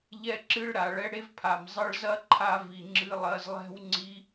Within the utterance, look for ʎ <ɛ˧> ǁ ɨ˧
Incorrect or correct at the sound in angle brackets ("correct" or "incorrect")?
correct